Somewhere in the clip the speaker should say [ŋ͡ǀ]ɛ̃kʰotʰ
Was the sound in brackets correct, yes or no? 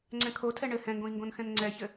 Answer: yes